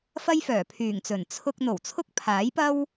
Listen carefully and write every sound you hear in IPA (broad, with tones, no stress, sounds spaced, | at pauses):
f ɐ˥ j f œː˨˩ pʰ yː˨˩ ŋ t͡s ɵ˨˩ n t͡sʰ ʊ˧ k̚ n̪ o˨˩ w t͡sʰ ʊ˥ k̚ pʰ aː˨˥ j p ɐ˥ w